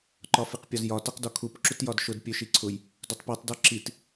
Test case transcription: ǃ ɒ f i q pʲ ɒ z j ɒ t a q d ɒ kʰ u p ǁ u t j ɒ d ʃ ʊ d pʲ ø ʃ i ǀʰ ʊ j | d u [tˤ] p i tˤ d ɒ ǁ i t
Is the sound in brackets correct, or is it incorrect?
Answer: correct